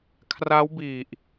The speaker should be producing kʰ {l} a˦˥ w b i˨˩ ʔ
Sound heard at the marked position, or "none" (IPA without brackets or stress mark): r